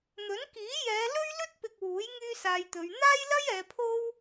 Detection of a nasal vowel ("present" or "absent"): absent